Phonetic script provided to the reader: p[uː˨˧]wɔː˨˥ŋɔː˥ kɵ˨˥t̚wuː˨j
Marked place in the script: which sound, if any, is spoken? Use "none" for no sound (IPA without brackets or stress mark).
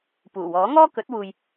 uː˨˩